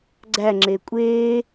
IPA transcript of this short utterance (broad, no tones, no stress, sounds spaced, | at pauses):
ɡ͡ǀ æ ŋ͡ǁ e kʷʼ e